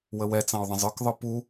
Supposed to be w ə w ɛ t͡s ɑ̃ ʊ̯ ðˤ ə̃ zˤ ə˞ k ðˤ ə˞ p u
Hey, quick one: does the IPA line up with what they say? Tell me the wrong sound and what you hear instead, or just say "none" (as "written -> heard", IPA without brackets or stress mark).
none